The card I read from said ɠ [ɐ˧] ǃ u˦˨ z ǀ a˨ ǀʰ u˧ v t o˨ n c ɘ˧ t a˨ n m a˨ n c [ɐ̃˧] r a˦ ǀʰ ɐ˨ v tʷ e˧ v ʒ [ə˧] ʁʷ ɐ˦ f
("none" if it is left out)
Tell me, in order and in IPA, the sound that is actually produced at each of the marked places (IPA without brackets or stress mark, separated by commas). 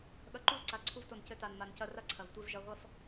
ɐ˧, ɐ˧, ɐ˧